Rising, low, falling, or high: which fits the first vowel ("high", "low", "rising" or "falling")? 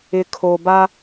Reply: low